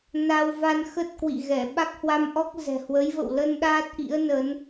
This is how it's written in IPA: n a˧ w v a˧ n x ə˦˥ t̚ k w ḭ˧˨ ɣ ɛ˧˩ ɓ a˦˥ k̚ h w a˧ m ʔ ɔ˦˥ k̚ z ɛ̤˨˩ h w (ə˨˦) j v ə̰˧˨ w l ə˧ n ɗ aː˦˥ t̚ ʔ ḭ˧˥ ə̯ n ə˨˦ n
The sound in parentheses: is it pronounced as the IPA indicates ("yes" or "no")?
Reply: yes